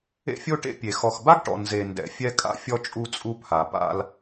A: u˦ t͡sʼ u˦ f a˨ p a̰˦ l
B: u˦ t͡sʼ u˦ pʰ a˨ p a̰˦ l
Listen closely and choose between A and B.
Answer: B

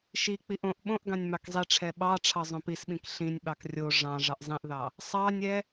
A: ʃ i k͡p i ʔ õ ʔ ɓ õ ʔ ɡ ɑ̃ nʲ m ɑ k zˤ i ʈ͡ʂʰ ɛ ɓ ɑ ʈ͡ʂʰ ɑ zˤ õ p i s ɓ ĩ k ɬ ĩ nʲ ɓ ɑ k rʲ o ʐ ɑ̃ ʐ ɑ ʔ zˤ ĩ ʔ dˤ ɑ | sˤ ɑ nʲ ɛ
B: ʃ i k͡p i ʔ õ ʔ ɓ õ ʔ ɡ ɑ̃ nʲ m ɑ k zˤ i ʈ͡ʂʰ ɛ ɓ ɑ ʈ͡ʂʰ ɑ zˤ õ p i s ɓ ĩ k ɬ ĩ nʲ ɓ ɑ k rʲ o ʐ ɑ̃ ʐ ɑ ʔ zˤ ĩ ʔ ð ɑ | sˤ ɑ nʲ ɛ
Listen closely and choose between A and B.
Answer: B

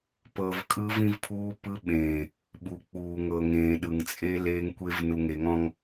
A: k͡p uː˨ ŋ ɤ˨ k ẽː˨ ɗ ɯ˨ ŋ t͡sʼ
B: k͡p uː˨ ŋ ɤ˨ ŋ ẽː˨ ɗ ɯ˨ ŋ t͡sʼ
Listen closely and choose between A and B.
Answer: B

